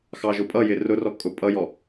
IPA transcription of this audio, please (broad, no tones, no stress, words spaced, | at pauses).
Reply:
xɑʒʊpʼʌjɪ rʊrɔ kʼʊpʼʌjɔ